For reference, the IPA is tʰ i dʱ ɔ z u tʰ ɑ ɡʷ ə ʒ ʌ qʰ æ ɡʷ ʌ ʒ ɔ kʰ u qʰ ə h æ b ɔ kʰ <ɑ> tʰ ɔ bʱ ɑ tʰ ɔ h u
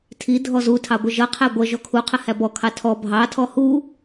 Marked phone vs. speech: correct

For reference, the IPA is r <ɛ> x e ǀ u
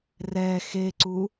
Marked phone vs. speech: correct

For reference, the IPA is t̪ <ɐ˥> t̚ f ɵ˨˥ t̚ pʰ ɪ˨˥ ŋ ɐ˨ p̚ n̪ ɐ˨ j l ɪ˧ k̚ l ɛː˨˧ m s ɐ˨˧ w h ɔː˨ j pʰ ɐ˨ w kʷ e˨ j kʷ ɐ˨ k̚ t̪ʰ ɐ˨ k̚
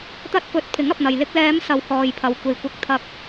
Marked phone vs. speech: incorrect: ɐ˧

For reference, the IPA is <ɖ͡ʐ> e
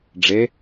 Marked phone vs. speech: correct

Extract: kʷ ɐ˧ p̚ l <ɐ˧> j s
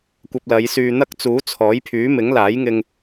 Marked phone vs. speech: incorrect: ɐ˨˧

